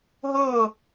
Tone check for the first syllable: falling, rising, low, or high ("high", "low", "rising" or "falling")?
falling